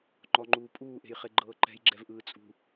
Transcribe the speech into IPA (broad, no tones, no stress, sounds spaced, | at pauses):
ŋ͡ǃ ɔ ŋ͡ǃ uː pʼ uː ʔ e̤ j χ e ɡ͡ǃ ɤː ǃ ɛ̤ j ɡ͡ǁ ɛ v ʔ ɯː t͡sʼ ṳ